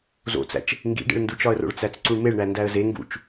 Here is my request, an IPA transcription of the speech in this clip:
z o̰ t͡s æ̰ t͡ʃ | ŋ ɡ ḭ ɖ ḛ ɭ n d u t͡ʃ ɒ ə̯ r o̰ ɭ t͡s æ t͡s ǀ u ɳ m e ɭ ɳ æ n d æ ə̯ z e ŋ ɡ ṵ t͡ʃ

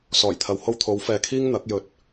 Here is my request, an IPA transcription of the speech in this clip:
s ɔː˨˩ j t̪ʰ ɐ˨ w h o˧ w t̪ʰ o˨˧ w f ɛː˧ kʰ iː˥ ŋ n̪ ɐ˨˥ k̚ j ɵ˧ t̚

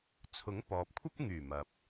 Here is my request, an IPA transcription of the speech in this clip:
t͡sʰ ʊ˨˥ ŋ p ɔː˨ p̚ kʷʰ ɐ˥ p̚ ŋ yː˨˩ m ɐ˨ p̚

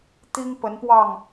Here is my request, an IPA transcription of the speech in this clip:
t̪ i˦ ŋ p ə˨˦ n p w ɑ˥˨ ŋ

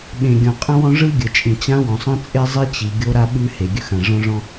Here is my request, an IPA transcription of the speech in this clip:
ɓ ẽ˩ ɡʲ ɔ̃˩ qʼ ə̃˥ w ɔ̃˥ ʐ ɯ˥ ɡʲ ə˩ t͡ʃʼ ĩ˩ t͡ɕ ã˥ w ɔ̃˩ sˤ ə̃˥ t͡sʼ e˥ zˤ i˥ t͡ɕ i˩ ɡʲ o˥ ɾ a˥ ɓ ʉ˥ h e˩ ɡʲ ɵ˥ x ã˩ ʐ ɔ̃˥ ʐ ɔ̃˥

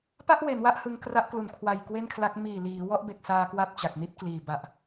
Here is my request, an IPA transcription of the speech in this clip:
p a˥˩ ʔ w e˩˦ n w a˦˥ ʔ h ɯ˧ ŋ k r a˦˥ ʔ k l u˨˩ n kʰ w a˨˩ j k w e˥˩ n kʰ l a˦˥ k̚ m iː˨˩ l iː˩˦ w ɔ˦˥ ʔ b e˨˩ k̚ s aː˧ k w a˥˩ p̚ t͡ɕ a˨˩ k̚ n i˥˩ t̚ k l iː˨˩ b a˨˩ ʔ

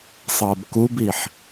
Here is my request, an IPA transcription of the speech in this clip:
sˤ ɤ b k u b i ħ

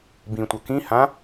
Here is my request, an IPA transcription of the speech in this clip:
b ĩ tʷ ʌ k ĩ h ã

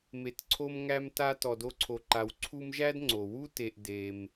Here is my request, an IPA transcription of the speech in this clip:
m e˨ t ǀʰ o˦ m ŋ æ˦ m t a˦ t ɔ˨ d o˦ ǀʰ o˨ ǃ a˨ w ǀʰ u˦ m ʒ æ˥ d ŋ͡ǀ o˩ w u˥ t e˨ ʔ d e˩ m

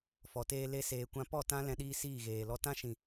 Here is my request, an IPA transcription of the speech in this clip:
f ɔ˨ t eː˧ l e˧ s eː˨ kʷ ã˧ p ɔ˦˨ t ã˦ l ɛ̃˧ ɗ iː˦ s iː˦˨ ɣ eː˨ l ɔ˦ t ã˦ ʃ ĩ˨

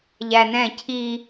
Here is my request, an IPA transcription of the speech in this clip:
ʎ æ n ɛ̃ cʰ i

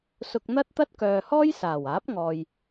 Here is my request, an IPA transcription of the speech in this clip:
s ʊ˧ k̚ n̪ ɐ˥ t̚ t̪ ɐ˥ t̚ k œː˨ h ɔː˥ j s aː˨˩ w aː˨˥ p̚ ŋ ɔː˨ j

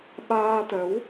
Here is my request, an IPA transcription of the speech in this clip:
ɓ aː˧ t̪ ə˨˦ w

